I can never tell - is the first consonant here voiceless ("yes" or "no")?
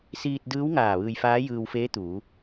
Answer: yes